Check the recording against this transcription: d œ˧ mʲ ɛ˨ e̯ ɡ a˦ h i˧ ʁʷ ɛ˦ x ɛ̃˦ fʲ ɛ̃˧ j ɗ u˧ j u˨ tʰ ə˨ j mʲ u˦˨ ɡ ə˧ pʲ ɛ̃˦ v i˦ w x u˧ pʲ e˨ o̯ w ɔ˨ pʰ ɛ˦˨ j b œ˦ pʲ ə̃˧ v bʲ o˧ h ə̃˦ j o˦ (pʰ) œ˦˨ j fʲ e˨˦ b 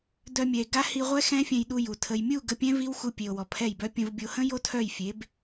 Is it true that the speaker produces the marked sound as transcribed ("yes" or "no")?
no